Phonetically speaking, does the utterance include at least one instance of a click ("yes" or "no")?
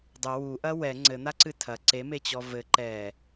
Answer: yes